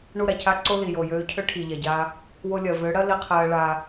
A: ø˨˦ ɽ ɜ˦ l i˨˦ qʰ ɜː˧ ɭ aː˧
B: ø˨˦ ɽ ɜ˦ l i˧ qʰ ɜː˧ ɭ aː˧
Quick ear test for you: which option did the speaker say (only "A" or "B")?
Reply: B